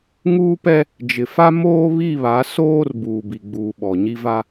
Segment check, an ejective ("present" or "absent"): absent